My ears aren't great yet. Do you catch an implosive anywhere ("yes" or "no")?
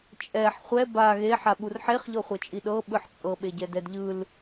yes